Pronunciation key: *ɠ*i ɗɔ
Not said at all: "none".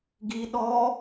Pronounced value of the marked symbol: ɡ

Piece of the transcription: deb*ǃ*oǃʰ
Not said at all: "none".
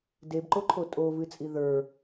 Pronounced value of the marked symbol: ǃ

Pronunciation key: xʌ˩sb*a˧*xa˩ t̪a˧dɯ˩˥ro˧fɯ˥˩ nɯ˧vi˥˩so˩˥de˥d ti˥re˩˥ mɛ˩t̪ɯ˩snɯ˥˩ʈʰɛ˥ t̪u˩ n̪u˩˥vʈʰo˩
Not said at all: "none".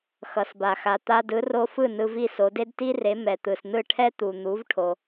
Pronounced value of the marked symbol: a˩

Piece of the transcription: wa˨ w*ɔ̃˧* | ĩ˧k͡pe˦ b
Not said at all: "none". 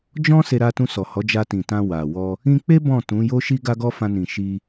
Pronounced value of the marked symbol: ɔ˧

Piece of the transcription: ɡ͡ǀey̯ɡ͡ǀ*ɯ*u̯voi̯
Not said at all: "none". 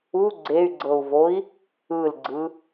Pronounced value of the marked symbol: ɤ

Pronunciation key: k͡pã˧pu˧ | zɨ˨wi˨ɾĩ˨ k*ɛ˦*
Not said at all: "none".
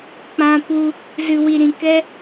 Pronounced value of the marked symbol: ɛ˦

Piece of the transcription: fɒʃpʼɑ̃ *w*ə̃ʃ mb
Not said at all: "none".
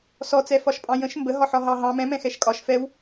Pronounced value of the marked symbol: j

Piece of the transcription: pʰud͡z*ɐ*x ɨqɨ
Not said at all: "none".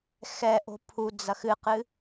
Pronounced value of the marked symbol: ɐ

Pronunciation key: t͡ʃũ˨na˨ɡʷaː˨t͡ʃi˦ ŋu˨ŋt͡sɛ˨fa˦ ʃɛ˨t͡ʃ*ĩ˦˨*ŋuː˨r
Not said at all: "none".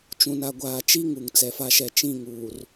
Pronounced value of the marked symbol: ĩ˦˨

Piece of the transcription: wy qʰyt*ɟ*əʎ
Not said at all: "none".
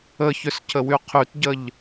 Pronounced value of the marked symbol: ɟ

